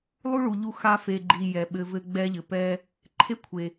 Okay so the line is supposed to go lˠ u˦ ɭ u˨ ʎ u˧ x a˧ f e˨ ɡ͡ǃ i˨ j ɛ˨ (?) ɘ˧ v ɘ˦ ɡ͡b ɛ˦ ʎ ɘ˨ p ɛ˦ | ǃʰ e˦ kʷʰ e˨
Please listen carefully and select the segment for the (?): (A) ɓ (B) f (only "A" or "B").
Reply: A